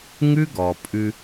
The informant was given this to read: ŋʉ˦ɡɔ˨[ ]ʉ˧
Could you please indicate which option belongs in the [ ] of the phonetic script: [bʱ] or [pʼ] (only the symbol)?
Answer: pʼ